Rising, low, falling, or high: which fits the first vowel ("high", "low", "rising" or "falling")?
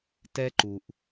high